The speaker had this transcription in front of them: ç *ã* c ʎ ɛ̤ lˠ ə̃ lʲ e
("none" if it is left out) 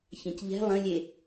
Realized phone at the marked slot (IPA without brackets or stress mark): ã